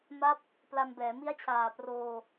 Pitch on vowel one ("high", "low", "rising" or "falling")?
falling